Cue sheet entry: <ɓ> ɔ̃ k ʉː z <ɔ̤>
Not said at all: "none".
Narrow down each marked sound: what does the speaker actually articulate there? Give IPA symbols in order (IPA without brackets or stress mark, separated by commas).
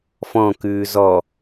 f, ɔ